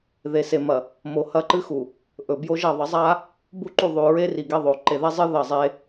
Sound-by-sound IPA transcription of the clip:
ðe˨se˨mɐ˨ | mo˨ hɐ˦ǃɨ˦xu˨ | ʔɵ˨bjo˦ʒɐ˦˨ ðˤɐ˨˦zˤa˦ | bu˦˨ǃu˦˨ ðˤʉ˨ɹe˦ri˨ ɡe˦ðˤo˨ ǃe˨ðe˦zˤɨ˦ ðɐ˦˨zˤe˦

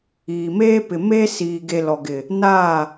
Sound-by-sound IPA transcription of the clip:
iː˨meː˦pɪ˨ meː˦ siː˨ ɡe˨ lɔ˨ɡɪ˨ | naː˦˨

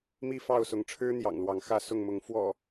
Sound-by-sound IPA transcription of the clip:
mi˥˨fɑ˥˨ʊ̯sʊ˨˦ŋ ʈ͡ʂʰɻ̩˦n̪jɑ̰˨˩ŋ lwɑ˨˦ŋxä˥˨sʊ˥˨ŋmʊ˨˦ŋ fwɔ̰˨˩

